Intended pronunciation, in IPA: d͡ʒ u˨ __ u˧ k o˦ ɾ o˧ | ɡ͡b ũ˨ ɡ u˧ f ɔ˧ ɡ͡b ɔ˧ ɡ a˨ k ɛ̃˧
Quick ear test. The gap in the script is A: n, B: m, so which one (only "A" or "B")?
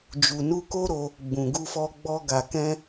A